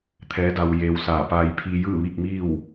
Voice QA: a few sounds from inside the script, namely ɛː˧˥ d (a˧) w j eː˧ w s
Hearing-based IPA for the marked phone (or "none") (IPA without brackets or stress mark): a˧